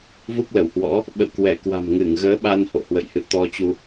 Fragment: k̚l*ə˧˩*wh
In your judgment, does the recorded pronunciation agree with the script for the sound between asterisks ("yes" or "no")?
yes